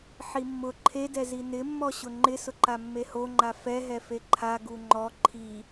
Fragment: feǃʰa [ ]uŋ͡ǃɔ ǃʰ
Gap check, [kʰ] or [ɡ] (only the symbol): ɡ